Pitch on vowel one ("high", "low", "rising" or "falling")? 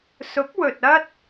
rising